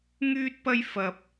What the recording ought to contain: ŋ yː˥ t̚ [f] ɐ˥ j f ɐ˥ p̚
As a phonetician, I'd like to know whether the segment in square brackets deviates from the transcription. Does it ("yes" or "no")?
yes